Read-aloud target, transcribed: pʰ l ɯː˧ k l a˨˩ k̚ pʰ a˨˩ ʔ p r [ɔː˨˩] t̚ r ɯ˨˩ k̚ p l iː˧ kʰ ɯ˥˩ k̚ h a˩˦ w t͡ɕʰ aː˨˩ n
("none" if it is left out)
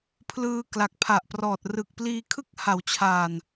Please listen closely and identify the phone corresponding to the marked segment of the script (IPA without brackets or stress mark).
ɔː˨˩